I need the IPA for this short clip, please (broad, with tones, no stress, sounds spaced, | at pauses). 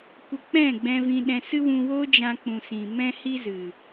kʷ ə˧ k͡p ɛ̃˦˨ ɡ͡b ɛ̃˧ v ĩ˧ ɗ ɛ̃˧ s ɨ˦ w ũ˧ w o˦ d͡ʒ ã˧ k͡p ũ˨ s ĩ˨ m ɛ̃˦ h i˦ z ɨ˨